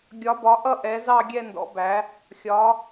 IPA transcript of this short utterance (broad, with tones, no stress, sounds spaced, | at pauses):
ɡʲ ɒ˨˥ b ɒ˨˥ ʔ ʌ˥˧ ʔ ɛ˨˥ z ɑ˥˧ ɡʲ ɛ˥˧ n d ɔ̰˨˥ b æ˨˥ | xʲ ɒ˨˥